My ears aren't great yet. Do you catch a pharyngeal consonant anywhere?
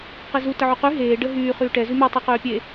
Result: yes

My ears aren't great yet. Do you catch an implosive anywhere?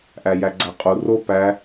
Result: no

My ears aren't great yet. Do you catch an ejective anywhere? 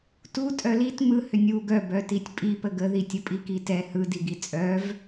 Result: yes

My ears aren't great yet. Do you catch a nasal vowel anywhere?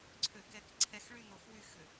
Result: no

